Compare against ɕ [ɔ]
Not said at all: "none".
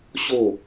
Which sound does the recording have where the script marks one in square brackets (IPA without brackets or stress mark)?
o